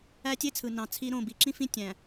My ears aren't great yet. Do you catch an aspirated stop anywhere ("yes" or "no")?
yes